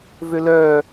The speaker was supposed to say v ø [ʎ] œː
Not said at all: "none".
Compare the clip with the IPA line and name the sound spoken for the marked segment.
l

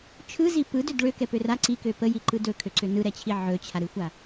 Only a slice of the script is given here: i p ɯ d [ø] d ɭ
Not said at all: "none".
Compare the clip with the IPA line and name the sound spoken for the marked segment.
ø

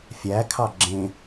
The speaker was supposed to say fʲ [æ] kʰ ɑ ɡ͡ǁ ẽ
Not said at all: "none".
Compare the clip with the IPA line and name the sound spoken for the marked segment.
æ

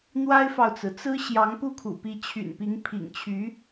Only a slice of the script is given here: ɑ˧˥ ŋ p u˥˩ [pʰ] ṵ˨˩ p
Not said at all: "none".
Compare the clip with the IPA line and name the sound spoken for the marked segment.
kʰ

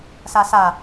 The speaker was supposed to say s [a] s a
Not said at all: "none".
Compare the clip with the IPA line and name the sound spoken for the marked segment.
a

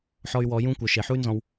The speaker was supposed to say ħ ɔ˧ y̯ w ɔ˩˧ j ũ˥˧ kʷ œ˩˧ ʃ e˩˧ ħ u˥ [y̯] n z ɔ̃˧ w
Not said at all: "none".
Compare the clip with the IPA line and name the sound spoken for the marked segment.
y̯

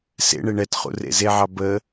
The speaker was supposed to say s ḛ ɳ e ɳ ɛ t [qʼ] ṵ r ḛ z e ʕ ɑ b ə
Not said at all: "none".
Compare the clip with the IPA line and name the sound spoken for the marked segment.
χ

